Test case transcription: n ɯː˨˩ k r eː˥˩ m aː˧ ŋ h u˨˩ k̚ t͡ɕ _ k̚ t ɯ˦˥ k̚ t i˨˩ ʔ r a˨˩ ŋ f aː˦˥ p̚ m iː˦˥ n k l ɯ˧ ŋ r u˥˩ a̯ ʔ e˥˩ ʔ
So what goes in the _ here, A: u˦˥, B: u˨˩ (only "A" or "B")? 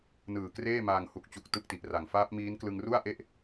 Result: B